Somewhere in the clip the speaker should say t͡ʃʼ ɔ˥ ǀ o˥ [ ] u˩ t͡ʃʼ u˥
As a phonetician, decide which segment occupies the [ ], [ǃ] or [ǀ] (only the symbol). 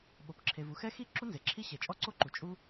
ǃ